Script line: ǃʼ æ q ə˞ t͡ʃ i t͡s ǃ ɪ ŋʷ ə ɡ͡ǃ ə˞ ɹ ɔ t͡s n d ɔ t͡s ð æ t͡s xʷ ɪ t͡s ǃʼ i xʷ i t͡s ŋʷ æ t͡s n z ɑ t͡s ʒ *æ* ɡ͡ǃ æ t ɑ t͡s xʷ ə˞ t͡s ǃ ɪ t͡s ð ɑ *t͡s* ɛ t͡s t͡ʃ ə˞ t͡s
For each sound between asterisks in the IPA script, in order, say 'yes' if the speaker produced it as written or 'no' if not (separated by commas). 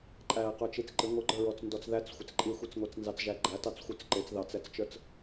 yes, yes